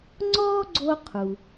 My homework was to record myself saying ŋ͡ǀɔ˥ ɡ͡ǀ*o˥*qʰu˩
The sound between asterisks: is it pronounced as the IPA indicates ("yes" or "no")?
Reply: yes